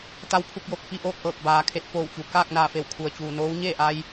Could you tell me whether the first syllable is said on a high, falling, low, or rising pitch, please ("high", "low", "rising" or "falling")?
rising